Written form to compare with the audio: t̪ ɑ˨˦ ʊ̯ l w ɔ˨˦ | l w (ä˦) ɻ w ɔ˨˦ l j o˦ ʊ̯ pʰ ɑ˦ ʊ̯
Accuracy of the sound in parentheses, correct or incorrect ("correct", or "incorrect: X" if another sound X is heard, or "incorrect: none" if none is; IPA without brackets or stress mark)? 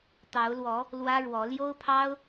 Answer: correct